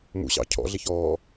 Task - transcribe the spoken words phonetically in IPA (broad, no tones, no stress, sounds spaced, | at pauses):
m ṵ ɕ ɑ̰ cʰ ɔ̰ ɮ ɪ ç ɔː